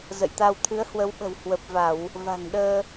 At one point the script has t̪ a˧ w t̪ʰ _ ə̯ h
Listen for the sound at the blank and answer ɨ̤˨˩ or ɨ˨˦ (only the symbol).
ɨ˨˦